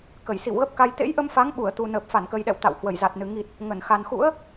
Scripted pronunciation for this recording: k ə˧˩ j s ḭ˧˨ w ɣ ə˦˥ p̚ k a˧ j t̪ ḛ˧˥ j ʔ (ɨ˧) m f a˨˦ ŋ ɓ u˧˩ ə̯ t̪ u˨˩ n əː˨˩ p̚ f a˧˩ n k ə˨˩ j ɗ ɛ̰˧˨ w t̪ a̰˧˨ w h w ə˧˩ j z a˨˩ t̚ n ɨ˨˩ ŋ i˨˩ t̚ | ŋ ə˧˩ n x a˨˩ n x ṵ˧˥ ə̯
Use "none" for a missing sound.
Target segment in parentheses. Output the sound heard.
ə˧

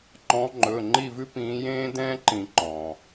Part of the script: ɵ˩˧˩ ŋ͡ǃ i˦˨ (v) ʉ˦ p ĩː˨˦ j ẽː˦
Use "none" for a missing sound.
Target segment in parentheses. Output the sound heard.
v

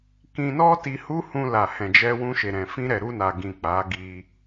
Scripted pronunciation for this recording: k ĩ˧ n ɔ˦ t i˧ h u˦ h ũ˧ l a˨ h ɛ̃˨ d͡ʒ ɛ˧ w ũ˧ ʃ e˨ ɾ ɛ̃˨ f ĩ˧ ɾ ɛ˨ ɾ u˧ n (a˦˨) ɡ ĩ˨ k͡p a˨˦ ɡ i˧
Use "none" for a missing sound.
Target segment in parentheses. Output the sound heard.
a˨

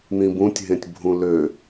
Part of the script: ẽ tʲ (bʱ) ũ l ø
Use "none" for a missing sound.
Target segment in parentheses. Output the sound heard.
bʱ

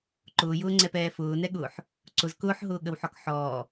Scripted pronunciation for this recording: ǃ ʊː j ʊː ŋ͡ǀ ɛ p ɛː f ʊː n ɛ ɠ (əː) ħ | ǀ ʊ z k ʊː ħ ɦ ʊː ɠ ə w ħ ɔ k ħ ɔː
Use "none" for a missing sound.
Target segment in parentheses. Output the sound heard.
ʊː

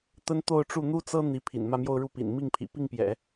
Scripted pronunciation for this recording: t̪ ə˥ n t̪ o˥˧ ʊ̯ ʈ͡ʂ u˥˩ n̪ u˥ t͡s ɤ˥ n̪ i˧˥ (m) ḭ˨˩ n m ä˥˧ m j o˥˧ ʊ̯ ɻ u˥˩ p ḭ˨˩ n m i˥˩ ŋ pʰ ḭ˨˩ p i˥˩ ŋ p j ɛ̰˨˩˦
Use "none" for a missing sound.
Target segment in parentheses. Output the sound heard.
pʰ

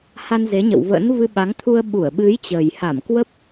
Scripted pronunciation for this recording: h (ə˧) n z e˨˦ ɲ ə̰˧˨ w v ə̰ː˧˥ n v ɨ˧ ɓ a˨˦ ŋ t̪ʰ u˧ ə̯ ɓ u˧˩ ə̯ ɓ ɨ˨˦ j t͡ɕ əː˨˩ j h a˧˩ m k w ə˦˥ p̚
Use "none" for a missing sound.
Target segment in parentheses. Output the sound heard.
a˧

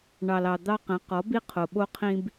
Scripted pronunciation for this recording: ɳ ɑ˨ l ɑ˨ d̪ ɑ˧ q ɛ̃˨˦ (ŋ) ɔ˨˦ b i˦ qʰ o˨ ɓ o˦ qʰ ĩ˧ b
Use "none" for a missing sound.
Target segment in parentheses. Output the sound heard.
q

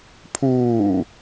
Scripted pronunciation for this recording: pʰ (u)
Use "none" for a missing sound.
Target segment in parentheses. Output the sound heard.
uː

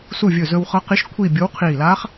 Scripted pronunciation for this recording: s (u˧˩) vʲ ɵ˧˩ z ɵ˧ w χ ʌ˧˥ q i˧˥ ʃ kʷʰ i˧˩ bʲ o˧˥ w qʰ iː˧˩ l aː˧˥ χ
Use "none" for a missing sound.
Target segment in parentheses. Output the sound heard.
u˧˩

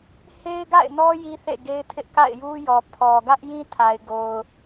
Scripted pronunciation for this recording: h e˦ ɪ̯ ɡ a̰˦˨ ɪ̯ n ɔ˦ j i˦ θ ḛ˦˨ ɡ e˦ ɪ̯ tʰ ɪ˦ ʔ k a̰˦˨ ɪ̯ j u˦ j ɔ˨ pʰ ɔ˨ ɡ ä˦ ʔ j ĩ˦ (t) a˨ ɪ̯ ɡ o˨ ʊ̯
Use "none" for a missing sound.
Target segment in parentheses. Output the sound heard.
tʰ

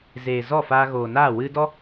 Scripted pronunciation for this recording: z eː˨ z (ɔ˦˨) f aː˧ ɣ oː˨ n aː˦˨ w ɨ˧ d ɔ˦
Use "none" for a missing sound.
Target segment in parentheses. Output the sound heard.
ɔ˦˨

